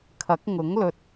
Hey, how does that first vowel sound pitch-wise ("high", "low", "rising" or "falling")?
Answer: rising